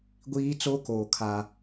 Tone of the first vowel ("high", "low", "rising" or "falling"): high